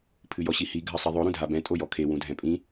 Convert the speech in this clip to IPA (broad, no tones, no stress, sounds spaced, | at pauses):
pʰ ɨ j ɔ ɕ i h i ɡʱ ɐ sˤ i ðˤ o ɾ ũ dʱ a b ɛ̃ tʼ o j ɔ kʰ e w ũ dʱ ɛ̃ pʼ ĩ